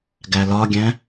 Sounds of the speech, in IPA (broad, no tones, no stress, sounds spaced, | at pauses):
ɡ æ l ɒ ɡʲ æ̃